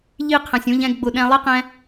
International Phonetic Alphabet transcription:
ʎ i˦˨ qʰ ɛ̃˨ sʲ ũ˧ ʎ ɛ̃˧ ɡ ɡ͡b ʊ˨ ɗ ɛ̃˧ lˠ i˦ q ɛ̃˦

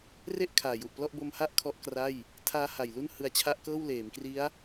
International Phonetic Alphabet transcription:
r e˥˩ ʔ kʰ aː˨˩ j u˨˩ ʔ p l ɔ˥˩ ʔ b o˧ m h a˦˥ ʔ kʰ ɔ˦˥ ʔ k r a˥˩ j | tʰ aː˦˥ h a˨˩ j l u˥˩ n h ɯ˧ a̯ t͡ɕʰ a˦˥ ʔ k ɤː˥˩ w l eː˩˦ m k r i˦˥ a̯

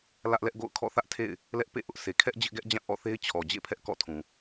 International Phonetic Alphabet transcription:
l ä˦ ʔ l ɛ˦ ʔ ɡ o̰˦˨ ʊ̯ kʰ ɔ̰˦˨ θ ä˦ ʔ tʰ ḛ˦˨ ɪ̯ | l ɛ˦ ʔ p ḛ˦˨ ʔ ʊ˦ ʔ sʰ e˨ kʰ ɛ˦ ʔ d͡ʑ ɪ˦ ʔ ɡ ɛ˦ ʔ d͡ʑ ã˦˨ ʔ ɔ̰˦˨ θ e˦ ɪ̯ t͡ɕʰ ɔ˨ d͡ʑ ḛ˦˨ pʰ ɛ˦ ʔ k ɔ̰˦˨ tʰ ũ˨

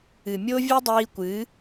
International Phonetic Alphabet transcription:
ɨ˨ mʲ o˦ vʲ ɨ˦ dˤ iː˧ kʷ ɨ˨˦

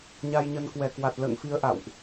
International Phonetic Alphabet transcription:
ɲ a˧ j ɲ ə˧ n k w ɛ˧˩ k w a˨˩ t̚ l ə̰ː˧˨ ŋ f i˨˦ ə̯ ʔ a̰˧˨ w ʔ

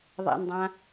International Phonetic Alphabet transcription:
ðˤ ḛ n dˤ ã

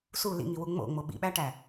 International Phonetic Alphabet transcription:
s u l ḭ ŋ i w u ŋ͡m o̰ ŋ͡m o ɓ ḭ ɓ æ ʈ æ

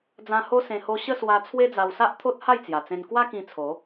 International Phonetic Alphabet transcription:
d͡z ã˧ h o˦ s ẽ˧ h o˧ ɕ ə˥˧ s w a˧ t͡sʰ w e˦ d͡z a˧ w s a˦ ʔ t̪ʰ o˦ t̚ h a˥˧ j t͡s j a˨˩ t͡s ẽ˧ n k w a˦ k ĩ˧ t͡sʰ o˨˦

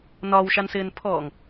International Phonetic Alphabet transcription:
n ɒ w ʃ a n s ɪː n pʰ ɔː ŋ

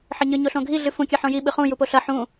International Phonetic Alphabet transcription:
ħ ɘ ɲ ɨ ɲ o ɬ õ ɡʱ i ɮ ɨ f ũ kʲ ɐ ħ õ j i ɓ ɨ χ ũ j u p o ɬ ɐ ħ ũ

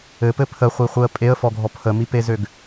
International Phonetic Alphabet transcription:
ɘ p ɘ pʰ ə χʷ i χʷ ɯ ə̯ pʼ e ə̯ f ɔ ɡʱ ɔ pʰ ə m i p e z ø ɡ

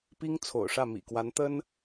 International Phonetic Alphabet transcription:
p i˥ ŋ t͡sʰ o̰˨˩ ʊ̯ ʂ ä˥˩ m ḭ˨˩ k w a˧˥ n t̪ ə˥ n

